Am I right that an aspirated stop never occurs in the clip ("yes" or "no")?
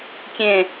yes